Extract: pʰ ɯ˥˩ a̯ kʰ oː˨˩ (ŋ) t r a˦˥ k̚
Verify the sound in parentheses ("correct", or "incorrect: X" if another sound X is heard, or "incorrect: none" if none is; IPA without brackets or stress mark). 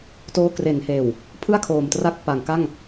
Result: incorrect: m